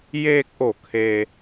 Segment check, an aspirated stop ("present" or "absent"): present